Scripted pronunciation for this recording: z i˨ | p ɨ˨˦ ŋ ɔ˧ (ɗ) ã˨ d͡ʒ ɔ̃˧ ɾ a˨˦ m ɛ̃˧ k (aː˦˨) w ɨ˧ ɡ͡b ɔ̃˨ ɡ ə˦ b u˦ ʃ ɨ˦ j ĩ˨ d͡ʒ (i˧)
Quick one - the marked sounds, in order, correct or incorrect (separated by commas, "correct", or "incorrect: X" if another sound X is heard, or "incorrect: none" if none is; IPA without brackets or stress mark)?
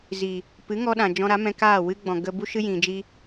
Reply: correct, correct, correct